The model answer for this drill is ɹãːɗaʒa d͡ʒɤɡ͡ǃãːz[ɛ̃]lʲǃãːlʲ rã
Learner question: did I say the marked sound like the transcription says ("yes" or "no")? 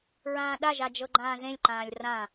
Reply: no